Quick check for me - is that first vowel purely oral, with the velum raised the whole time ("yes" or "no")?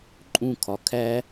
no